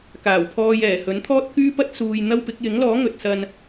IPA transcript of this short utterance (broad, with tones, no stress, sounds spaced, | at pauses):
k aː˨˩ w pʰ ɔː˧ j ɛː˨˩ h ɵ˨˥ n t̪ʰ ɔː˥ t̚ k yː˥ p ɐ˥ t̚ s uː˧ j n̪ ɐ˧ w p ɪ˨˥ k̚ j ɪ˨˥ ŋ l ɔː˨˥ ŋ ɵ˨ t̚ s ɐ˧ n